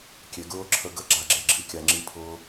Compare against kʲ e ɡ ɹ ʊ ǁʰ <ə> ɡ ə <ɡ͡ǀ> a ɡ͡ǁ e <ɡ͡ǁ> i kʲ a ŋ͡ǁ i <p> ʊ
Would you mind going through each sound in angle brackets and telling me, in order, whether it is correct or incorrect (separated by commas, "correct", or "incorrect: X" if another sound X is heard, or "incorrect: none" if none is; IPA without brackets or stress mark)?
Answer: correct, incorrect: ɡ͡ǁ, correct, incorrect: pʰ